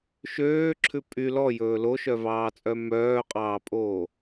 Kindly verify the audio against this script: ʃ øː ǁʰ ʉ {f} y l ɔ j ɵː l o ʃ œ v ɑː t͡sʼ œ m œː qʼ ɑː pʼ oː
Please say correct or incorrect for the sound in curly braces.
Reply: incorrect